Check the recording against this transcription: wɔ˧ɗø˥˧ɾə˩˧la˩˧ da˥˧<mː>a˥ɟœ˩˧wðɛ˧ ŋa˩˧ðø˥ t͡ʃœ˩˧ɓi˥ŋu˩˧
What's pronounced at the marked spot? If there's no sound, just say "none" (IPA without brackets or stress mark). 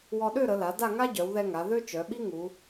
ŋ